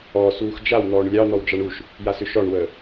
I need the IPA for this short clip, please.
ɔː s uː x d͡ʒ a w n̪ ɔː ɳ lʲ ɑ n̪ ɔ w d͡ʒ ɑ ɳ u ʃ | j a s ʏ ʃ ɔ ɳ w əː

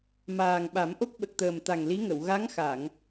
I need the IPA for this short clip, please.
m aː˨˩ ŋ ɓ a˨˩˦ m ʔ o˦˥ k̚ ɓ ə˨˩ k̚ t̪ əː˨˩ m t̪ a˨˩ ŋ l i˧˥ ŋ ə˨˩˨ w ɣ a˧˥ ŋ x a˨˩˨ ŋ

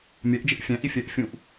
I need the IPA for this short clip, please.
mʲ ɛ ʔ d͡ʒ ɪ ʔ fʲ æ̃ ʔ i fʲ ɛː ʔ fʲ ũ ʔ

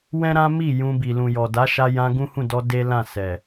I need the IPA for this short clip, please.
w ɛ̃˦ ɾ ã˦ m i˦˨ j ũ˧ b i˨ l ũ˨ j ɔ˨ d a˨˦ ʃ a˧ j ã˧ ɡ ũ˦ h ũ˦˨ d ɔ˧ d e˦ l ã˦˨ s ɛ˨

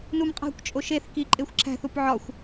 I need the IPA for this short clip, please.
n u m qʼ æ̤ kʷ t͡ʃʼ o ʃ e θ k i ǃʼ e xʷ ǁʰ æ̤ θ u p ʕ ɒ xʷ

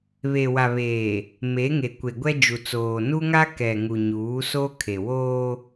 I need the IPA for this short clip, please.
β e˨ w a˨ β eː˨ | m e˨˦ ŋ e˨ kʷ e˨ ɡʷ ɛ˦ d͡ʒ u˨ t͡s oː˨ n u˦ ŋ a˦ k ɛ˨ ŋ u˨ ɲ uː˨˦ s o˦ kʰ e˨ w oː˦

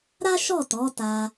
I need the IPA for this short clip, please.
ɾ a˦ ʃ ɔ˦˨ t ɔ˨˦ t a˧

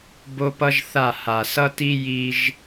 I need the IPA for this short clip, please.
b o˦ p ʌ˦ ʒ θ a˦˨ h a˨ s ʌ˦ t i˦ j i˦ ʒ

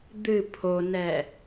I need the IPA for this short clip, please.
d̪ ɨ pʰ o n ɛ

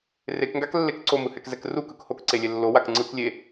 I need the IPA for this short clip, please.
r e k ŋ ɡ a k lː e k ǀ o m ɯ h ɛ k z ɛ k r u k ɯ k h o k ǀ e lʲ e lː o w a k ŋ͡ǀ ɯ k lʲ e

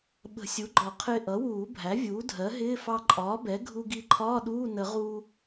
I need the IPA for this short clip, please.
ɓ ə̤˨˩˦ sʲ u˩˥ ɡ͡ǃ ɒ˨˩˦ qʰ ɪː˧ ʔ ʌ˩˥ w uː˨˩˦ bʱ æ˩˥ vʲ uː˩˥ dʱ ɜ˩˥ ɦ ɪː˧˥˧ f ɑ˧ ǃʼ ɒː˩˥ b ɛ˩˥ ɡʱ u˧ ɡ i˧ ǃʰ ɒː˧˥˧ ɗ uː˧˥˧ n ə˨˩˦ ʁ u˧

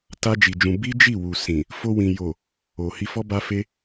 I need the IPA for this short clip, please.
t a˦ d͡ʒ i˧ d͡ʒ ũ˧ b i˦ d͡ʒ i˦˨ w u˨ s ĩ˨ | f o˧ w ĩ˨ j o˨ | o˨ h i˧ f ɔ˦ b a˦ f e˦

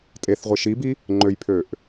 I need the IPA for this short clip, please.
tʼ e θ ʁʷ i ʃ i b i | ŋ͡ǃ ø j pʰ ø ʔ

